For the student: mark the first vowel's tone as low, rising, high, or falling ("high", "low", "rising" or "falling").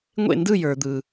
falling